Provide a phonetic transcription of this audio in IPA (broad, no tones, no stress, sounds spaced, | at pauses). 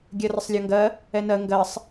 ɡʲ ɜ r ə sˤ lʲ ɒ ŋ ɡ ɜ | ɛ n ɜ ŋ ɡ ɜ sˤ